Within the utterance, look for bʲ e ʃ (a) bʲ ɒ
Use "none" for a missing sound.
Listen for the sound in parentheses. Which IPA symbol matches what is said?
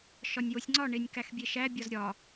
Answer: æ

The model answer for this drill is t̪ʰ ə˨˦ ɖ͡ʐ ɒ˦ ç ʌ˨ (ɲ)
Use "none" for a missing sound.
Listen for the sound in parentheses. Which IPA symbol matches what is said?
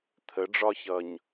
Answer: ɲ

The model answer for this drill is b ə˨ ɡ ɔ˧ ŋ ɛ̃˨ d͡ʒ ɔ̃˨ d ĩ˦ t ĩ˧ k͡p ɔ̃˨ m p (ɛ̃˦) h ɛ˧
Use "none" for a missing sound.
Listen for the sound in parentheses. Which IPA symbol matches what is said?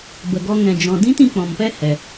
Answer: ɛ˦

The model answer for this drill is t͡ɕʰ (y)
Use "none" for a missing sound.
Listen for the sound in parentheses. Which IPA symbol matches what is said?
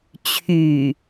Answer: y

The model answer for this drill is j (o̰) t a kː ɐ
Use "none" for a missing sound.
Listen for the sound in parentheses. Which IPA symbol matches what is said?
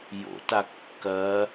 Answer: o̰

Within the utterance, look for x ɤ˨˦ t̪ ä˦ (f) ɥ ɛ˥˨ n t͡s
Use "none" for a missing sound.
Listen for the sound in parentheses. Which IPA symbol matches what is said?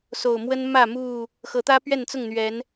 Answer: p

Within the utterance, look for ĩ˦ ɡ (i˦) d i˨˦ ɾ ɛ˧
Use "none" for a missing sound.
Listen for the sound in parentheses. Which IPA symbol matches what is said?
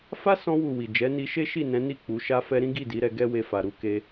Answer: i˦˨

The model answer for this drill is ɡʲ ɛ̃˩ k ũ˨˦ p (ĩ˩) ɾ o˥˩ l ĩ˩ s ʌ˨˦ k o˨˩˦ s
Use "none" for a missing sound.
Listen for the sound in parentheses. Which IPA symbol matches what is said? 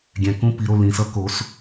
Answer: i˩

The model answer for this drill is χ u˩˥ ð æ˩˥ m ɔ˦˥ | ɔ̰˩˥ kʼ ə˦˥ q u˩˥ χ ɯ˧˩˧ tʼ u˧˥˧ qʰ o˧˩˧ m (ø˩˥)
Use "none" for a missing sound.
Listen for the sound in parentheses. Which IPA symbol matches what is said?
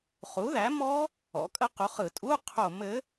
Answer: ɘ˩˥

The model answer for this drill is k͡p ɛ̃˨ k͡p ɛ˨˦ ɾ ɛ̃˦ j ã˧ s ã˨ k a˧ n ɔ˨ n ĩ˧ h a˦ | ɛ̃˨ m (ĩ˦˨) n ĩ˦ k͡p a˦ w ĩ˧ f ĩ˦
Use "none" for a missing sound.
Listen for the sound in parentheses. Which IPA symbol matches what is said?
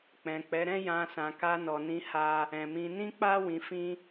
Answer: ĩ˧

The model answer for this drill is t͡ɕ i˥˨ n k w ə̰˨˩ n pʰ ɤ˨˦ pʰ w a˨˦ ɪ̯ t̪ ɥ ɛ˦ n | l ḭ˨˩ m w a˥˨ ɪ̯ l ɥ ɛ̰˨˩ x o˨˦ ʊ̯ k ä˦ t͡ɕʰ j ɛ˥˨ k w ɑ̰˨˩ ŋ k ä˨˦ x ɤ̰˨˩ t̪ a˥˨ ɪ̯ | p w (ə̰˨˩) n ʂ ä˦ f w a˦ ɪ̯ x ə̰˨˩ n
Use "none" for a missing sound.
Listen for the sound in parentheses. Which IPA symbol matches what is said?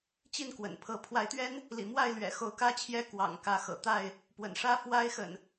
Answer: ə̰˨˩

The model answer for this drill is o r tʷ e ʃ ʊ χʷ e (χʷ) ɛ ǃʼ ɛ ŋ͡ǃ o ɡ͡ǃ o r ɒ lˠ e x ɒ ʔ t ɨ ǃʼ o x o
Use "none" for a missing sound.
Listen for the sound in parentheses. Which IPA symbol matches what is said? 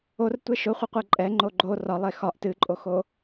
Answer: qʷ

